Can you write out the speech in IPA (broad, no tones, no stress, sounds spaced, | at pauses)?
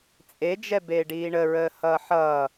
t͡sʼ e d͡ʒ ɛ b eː ɖ iː ɳ ə ɹ əː h ʌː ħ ʌː